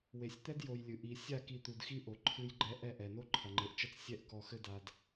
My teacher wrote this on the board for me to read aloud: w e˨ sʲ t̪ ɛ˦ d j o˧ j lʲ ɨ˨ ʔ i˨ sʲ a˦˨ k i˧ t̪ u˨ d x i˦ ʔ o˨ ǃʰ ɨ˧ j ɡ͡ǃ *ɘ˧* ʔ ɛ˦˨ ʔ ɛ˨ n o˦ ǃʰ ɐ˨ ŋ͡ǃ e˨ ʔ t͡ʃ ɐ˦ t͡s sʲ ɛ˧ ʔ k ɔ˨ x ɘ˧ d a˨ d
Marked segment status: incorrect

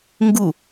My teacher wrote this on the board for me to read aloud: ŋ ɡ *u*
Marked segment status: correct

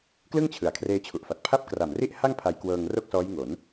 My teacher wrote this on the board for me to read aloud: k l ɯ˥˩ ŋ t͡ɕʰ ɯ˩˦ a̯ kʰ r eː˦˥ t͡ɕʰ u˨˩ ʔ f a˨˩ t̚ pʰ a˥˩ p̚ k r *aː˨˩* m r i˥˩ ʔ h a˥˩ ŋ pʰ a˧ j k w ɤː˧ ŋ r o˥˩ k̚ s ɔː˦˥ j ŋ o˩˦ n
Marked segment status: incorrect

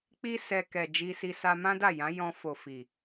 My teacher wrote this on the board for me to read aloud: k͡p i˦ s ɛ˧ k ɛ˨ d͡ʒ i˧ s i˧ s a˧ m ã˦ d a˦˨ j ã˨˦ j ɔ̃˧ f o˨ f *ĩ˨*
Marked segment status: incorrect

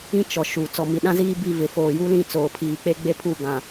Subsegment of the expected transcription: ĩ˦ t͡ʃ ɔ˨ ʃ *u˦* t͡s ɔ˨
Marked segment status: incorrect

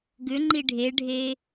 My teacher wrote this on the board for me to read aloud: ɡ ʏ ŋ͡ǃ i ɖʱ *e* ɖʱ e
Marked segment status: correct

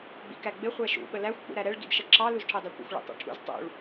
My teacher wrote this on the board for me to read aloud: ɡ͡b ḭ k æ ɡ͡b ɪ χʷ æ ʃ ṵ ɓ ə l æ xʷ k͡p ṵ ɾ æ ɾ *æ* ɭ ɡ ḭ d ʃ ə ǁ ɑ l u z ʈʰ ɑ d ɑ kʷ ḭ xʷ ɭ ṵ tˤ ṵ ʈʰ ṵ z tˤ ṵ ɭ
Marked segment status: incorrect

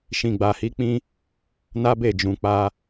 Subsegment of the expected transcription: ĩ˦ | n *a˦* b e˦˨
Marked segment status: correct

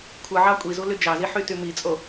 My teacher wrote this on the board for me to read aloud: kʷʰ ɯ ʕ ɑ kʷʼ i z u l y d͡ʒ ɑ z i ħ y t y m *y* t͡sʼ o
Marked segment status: incorrect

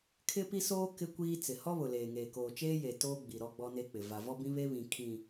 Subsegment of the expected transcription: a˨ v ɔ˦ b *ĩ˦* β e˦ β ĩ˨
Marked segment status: correct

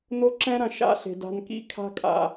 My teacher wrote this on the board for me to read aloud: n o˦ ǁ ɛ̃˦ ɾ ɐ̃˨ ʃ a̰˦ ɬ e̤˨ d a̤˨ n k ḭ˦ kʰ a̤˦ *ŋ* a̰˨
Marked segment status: incorrect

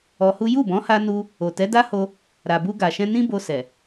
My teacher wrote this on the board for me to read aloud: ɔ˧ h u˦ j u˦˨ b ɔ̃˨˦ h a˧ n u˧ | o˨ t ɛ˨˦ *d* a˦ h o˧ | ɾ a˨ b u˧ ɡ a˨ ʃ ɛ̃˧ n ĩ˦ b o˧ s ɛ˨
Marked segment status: correct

